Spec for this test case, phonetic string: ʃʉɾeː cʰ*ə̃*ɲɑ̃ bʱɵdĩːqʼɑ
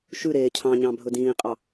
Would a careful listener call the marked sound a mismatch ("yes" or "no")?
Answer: yes